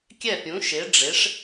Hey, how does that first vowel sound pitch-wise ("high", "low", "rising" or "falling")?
falling